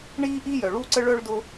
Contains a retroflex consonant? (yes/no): yes